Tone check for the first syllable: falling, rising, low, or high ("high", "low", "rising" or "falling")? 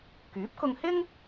rising